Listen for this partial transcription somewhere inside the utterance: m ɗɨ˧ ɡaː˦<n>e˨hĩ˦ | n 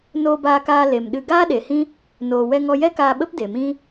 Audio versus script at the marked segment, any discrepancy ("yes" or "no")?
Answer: yes